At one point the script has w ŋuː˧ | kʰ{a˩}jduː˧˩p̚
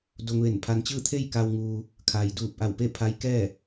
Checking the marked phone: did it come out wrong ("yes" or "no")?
yes